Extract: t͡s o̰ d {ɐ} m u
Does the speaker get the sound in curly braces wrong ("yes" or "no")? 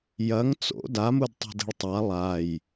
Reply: yes